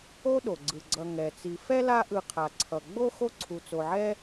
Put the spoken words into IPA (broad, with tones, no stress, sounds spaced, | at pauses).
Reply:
o˥ ɗ o˩ ɡ͡ǀ ɯ˩ ɡ͡ǀ ʌ˨ ŋ ɛ˩ t͡s i˨ f ɛ˥ l a˦ ʔ ɯ˨ qʰ a˩ ǀʰ ʌ˩ ɡ͡b o˥ x o˦ ǀʰ u˩ t͡s o˩ ʕ ɛ˦